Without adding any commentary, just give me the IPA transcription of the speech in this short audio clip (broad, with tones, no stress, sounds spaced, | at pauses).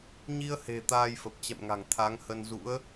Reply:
ɲ i˧ ə̯ h e̤˨˩ t̪ aː˧ j f ə˨˩ p̚ t͡ɕ ɛ̰˧˨ m ŋ a̤˨˩ ŋ t̪ʰ a˨˦ ŋ h ə˧ n z ṵ˧˥ ə̯